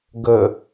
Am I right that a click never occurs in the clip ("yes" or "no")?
yes